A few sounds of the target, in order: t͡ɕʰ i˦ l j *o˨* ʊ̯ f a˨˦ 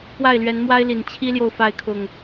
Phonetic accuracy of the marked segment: correct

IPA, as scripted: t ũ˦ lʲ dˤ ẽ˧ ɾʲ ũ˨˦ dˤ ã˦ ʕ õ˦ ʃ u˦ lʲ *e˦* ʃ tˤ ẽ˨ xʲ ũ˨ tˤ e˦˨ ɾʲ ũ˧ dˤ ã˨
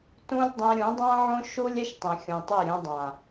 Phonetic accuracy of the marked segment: correct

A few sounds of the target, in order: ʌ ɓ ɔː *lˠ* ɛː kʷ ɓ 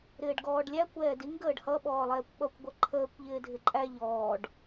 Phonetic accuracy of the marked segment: correct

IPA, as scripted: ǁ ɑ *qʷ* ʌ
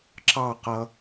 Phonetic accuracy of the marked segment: incorrect: q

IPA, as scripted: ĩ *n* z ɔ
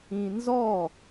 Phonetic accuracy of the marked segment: correct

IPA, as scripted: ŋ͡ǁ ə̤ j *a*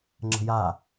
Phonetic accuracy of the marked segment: correct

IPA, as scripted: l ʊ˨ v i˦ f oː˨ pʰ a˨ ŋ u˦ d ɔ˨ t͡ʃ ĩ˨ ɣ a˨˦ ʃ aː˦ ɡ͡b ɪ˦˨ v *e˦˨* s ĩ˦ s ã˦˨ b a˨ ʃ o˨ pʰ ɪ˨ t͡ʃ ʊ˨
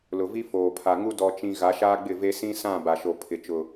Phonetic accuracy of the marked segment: incorrect: e˦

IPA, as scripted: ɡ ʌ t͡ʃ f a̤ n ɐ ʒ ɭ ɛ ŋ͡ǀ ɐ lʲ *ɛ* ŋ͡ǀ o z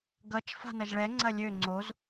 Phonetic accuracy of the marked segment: incorrect: ø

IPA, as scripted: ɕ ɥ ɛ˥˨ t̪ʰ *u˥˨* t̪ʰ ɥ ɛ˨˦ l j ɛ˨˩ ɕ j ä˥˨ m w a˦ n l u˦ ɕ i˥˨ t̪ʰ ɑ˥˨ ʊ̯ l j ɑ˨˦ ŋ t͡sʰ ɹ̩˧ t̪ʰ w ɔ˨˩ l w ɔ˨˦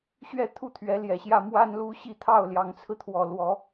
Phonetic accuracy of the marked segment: correct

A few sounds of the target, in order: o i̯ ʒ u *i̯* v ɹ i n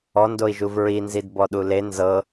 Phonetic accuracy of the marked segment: incorrect: none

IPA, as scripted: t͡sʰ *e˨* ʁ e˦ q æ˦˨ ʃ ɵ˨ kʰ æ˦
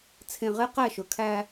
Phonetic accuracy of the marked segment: incorrect: ẽ˨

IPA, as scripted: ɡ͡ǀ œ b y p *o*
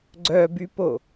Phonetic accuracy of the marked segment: correct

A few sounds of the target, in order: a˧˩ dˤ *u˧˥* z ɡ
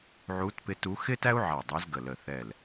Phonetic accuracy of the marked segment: correct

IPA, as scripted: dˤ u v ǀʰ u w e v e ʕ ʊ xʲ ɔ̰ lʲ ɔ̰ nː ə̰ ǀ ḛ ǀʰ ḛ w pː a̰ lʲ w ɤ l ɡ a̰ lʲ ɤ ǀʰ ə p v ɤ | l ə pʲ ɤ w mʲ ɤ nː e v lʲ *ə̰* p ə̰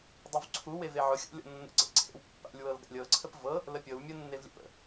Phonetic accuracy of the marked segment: correct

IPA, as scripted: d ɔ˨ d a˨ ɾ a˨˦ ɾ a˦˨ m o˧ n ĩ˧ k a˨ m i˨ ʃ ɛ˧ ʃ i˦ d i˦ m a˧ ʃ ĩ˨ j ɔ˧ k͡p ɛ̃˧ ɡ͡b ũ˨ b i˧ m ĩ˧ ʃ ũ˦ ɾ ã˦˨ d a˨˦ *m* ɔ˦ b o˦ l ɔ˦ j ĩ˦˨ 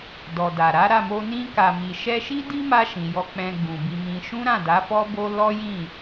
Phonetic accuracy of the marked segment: incorrect: f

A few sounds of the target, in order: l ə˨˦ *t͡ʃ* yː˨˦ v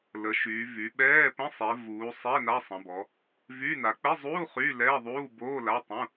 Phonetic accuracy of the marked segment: incorrect: ʃ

